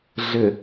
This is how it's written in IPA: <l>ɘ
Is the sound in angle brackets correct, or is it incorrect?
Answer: incorrect